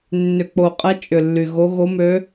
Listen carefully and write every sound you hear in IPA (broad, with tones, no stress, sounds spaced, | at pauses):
nː ʏ˨˩ k͡p o˨˩ qʼ ɛ˧˥ t͡ʃʼ ʏ˨˩ lː y˨˩ ɣ o˧˥ ɣ o˧˥ m ø˧˥